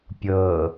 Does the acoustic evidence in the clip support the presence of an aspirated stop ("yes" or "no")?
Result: no